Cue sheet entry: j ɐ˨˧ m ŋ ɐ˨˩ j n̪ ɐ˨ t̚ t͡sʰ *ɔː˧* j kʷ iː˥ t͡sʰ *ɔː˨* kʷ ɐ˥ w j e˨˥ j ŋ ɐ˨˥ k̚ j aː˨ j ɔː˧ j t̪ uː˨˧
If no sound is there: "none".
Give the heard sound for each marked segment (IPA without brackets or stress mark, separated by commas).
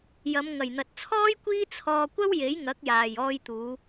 ɔː˥, ɔː˧